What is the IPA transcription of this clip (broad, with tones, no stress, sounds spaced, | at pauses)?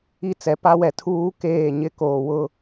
i˦˨ t͡s ɛ˨ p a˦ w ɛ˨ tʰ uː˦ k eː˦˨ ɲ ɪ˦ k oː˨ w ʊ˦